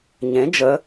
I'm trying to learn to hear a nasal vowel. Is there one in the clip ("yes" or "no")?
yes